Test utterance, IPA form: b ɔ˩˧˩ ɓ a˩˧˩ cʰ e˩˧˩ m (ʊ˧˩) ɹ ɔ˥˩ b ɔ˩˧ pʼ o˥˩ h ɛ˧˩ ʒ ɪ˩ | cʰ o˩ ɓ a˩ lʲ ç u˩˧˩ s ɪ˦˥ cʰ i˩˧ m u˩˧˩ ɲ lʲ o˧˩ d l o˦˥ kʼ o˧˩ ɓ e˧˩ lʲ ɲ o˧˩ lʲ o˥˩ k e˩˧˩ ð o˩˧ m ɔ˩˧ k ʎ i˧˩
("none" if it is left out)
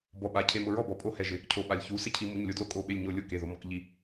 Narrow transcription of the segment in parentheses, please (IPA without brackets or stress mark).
ʊ˧˩